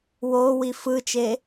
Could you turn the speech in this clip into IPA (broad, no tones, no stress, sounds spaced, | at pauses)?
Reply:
w o w i f ɯ t͡ʃ e